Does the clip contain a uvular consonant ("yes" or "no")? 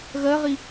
yes